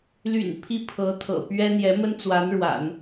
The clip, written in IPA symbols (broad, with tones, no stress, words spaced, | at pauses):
ly̰˨˩n pʰi˥˩pʰɤ˧˥t̪ʰɤ̰˨˩pɥɛ˥ n̪jɛ˧˥mə˥n t͡swa˧˥nɻwa̰˨˩˦n